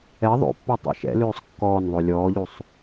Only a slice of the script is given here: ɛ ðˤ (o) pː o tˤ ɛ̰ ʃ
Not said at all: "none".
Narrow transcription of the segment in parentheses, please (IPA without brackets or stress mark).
o̰